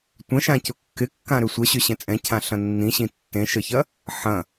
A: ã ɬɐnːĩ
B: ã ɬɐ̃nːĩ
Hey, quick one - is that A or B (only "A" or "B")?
B